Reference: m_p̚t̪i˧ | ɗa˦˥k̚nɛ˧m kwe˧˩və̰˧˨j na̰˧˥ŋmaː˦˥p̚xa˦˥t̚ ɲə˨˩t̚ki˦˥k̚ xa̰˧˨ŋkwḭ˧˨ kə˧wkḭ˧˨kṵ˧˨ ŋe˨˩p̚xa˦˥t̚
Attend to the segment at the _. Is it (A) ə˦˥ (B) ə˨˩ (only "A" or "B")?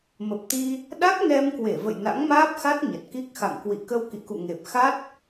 B